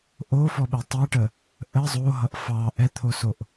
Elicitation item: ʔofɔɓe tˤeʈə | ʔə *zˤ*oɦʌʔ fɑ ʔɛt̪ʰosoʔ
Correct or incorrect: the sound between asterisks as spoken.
correct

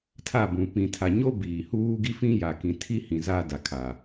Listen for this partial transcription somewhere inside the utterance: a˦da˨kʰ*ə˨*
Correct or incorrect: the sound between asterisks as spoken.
incorrect: a˨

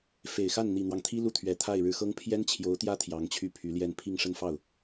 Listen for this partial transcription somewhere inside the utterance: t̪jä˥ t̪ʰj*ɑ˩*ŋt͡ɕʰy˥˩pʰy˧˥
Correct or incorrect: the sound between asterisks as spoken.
incorrect: ɑ˧˥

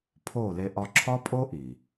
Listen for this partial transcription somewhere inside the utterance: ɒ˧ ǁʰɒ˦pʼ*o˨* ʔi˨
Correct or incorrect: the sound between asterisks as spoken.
incorrect: o˦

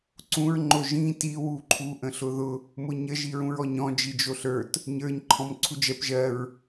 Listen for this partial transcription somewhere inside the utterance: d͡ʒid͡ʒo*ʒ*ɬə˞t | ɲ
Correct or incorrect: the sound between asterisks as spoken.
incorrect: none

